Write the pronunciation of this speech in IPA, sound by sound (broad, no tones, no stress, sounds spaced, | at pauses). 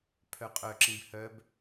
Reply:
pʰ œ qʼ œ ǁ ĩ b h œ b